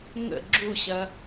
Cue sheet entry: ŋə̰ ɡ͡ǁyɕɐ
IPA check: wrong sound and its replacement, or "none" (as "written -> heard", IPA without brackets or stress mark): y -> u